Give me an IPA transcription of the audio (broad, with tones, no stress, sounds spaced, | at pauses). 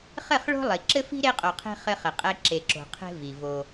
χ ɘ˦˨ χ ɭ o̤˦ lˠ i˨ ǁ ɘ˦ f i̤˦ ɾ e˦ qʼ o˨ qʰ e̤˦ χ ɘ˦ χ ɘ˨ qʼ ɛ˦ ǁ e˨ ǁ o̤˨ qʰ e̤˦ v i˨ v o˦